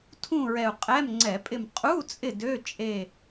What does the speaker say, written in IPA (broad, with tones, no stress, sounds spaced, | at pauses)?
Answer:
tʰ ũ˦˨ ɹ ɛ˨˩ u̯ qʼ ɛ˧˥˧ m ŋ͡ǀ ɛ˧˩˧ pʼ ɪ˦˨ m qʼ u˧˥˧ t͡sʼ ɪ˦˨ d ø˧˥˧ t͡ʃʼ e˦˨